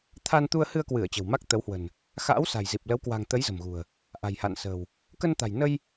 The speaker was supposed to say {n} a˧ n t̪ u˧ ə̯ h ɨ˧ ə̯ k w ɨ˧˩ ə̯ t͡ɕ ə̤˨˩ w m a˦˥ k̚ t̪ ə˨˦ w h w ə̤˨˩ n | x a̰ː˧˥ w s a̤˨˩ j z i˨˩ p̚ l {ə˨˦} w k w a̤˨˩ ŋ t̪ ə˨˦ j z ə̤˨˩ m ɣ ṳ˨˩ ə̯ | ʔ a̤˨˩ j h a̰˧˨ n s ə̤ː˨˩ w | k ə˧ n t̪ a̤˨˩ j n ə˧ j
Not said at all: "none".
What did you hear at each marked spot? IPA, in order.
t̪ʰ, ə˨˦

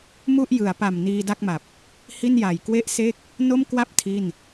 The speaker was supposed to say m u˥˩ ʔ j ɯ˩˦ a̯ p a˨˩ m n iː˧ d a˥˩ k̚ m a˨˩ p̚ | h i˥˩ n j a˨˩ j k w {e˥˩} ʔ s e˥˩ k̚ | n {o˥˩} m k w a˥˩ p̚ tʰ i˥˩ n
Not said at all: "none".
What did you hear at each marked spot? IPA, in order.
e˥˩, o˥˩

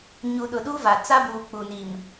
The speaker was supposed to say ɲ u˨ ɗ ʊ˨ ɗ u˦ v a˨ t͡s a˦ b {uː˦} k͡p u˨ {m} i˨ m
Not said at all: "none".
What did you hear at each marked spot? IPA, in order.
uː˨, n

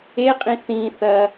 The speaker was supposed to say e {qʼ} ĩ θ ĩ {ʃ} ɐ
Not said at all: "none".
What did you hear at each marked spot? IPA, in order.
qʼ, θ

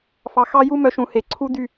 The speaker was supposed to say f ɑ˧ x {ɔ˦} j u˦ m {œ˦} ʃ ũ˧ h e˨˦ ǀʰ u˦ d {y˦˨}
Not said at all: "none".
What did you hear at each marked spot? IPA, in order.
ɑ˦, œ˦, y˦˨

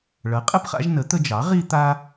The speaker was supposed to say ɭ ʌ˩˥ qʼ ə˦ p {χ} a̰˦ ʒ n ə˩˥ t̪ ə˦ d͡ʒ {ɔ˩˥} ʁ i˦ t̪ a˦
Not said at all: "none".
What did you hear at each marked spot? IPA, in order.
χ, ɑ˩˥

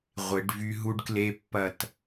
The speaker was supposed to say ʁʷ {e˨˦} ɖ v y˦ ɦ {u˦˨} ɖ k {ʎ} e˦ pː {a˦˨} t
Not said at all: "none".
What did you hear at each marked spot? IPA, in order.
e˨˦, u˦, l, ɐ˦˨

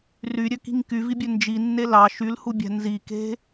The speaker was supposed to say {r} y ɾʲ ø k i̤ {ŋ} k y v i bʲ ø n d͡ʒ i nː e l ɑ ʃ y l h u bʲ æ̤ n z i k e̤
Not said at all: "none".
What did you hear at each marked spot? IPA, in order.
r, ŋ

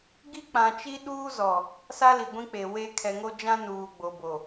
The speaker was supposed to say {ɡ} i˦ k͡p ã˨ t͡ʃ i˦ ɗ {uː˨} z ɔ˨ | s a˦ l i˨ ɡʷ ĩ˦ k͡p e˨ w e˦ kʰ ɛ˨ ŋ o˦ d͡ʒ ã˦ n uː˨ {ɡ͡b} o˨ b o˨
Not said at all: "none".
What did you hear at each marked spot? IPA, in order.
ɡ, uː˦, ɡ͡b

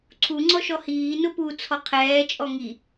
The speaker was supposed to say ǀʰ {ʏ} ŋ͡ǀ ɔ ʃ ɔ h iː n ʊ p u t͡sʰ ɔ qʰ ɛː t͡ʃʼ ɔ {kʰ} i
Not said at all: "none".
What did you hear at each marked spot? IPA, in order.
u, ŋ

